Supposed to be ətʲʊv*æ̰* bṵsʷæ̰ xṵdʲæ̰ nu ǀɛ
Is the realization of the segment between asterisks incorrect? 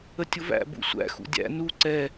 no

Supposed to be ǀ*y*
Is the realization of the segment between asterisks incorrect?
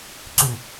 no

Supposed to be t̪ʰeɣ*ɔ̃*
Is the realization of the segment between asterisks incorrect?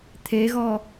yes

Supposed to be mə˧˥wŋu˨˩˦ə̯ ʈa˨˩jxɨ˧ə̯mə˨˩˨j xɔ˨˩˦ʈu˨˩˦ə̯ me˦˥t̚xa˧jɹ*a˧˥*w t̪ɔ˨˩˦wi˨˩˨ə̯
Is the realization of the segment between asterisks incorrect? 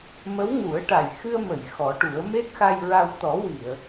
yes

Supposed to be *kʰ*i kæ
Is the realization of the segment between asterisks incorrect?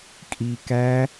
yes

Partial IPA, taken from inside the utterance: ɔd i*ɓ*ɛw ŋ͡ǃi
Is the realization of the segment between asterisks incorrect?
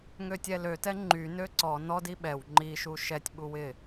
no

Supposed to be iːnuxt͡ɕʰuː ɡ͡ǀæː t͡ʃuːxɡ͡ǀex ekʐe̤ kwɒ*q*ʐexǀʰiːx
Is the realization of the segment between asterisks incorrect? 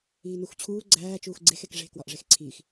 yes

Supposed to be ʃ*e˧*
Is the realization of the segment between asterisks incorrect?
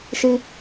yes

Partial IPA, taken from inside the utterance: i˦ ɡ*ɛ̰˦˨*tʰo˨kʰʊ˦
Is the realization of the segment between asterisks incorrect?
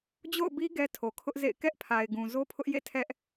yes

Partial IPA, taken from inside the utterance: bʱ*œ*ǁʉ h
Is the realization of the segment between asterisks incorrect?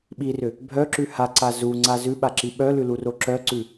no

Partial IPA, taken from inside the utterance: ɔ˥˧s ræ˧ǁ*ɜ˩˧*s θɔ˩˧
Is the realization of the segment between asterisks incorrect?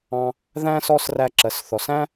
no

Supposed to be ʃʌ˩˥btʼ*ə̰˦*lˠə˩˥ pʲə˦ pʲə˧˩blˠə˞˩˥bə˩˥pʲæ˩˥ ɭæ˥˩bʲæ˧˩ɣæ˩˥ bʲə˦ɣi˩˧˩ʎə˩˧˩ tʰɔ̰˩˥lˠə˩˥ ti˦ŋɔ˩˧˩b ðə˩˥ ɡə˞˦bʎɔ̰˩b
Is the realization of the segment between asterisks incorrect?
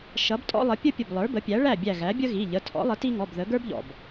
yes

